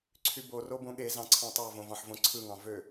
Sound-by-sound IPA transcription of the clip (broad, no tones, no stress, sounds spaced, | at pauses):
ǀʰ y b o r o b õ ɠ e z ɑ̃ ǀʰ ɑ̃ tˤ ɑ v õ v ɑ̃ ħ v õ ǀʰ ɯ ŋ ɑ̃ v ø